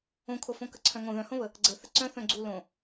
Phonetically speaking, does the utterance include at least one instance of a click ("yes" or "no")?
yes